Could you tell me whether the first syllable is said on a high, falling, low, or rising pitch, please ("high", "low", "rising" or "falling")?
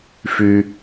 low